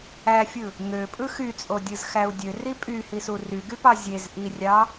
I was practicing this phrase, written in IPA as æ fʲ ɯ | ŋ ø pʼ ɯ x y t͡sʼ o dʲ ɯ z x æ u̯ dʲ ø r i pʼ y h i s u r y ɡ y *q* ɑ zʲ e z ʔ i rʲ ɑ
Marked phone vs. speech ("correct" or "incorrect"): incorrect